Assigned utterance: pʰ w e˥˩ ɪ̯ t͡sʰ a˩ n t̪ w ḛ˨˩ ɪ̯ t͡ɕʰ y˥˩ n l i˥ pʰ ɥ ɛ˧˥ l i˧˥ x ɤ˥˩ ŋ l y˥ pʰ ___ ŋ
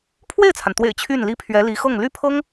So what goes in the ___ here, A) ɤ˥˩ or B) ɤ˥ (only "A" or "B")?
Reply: B